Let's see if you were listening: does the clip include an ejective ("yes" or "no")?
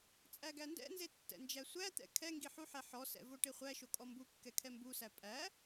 yes